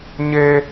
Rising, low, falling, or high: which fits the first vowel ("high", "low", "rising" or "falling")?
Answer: high